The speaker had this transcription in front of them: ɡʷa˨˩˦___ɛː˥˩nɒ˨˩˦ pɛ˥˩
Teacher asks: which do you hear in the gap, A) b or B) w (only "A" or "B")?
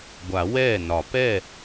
B